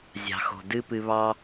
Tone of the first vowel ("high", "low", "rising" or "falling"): low